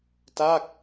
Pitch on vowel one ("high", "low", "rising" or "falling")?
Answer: falling